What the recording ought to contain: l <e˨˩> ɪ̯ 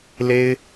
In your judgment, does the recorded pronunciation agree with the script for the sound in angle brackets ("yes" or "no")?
no